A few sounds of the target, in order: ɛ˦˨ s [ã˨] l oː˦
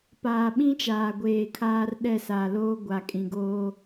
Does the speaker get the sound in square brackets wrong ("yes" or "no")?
yes